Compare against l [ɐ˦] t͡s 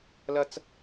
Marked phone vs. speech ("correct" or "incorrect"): correct